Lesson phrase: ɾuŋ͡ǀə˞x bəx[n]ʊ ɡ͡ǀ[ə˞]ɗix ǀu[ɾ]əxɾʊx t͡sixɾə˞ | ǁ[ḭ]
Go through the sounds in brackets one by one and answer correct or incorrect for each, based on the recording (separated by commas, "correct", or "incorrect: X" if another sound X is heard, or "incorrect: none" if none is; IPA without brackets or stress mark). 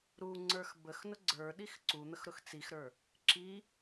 correct, correct, incorrect: n̪, incorrect: i